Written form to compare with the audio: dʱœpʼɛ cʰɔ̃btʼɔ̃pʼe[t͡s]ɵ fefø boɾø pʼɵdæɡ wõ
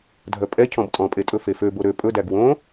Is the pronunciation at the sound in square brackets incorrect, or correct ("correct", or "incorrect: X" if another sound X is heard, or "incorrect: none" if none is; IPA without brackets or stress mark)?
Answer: incorrect: tʼ